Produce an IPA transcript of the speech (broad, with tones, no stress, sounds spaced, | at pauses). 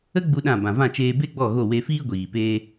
ə˦ ɡ͡b u˦ ɗ ã˦˨ b ã˨ v ã˦˨ t͡ʃ eː˧ b e˦ ɡ͡b ɔ˦˨ ɣ o˦˨ w e˧ f iː˦ ɡʷ iː˨ p eː˦